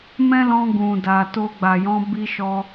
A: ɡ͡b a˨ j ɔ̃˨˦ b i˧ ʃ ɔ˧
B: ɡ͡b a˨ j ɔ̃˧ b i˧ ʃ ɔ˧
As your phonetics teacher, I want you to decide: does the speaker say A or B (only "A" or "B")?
A